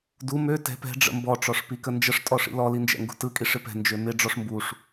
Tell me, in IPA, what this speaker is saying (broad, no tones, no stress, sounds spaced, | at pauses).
d u m ø t ɛ̤ p ɛ̤ ɖ͡ʐ ə̰ m b ɔ ʈ͡ʂ ɔ ʂ p i k ə n d͡ʒ ə ʂ tʼ ɔ ʂ ḭ l ɔ l i n d͡ʒ ɛ̰ ŋ ɡ ṳ t ɯ kʼ i ʂ ɪ p ɛ̤ n d͡ʒ ø m ɪ ɖ͡ʐ ɔ ʂ m b u ʂ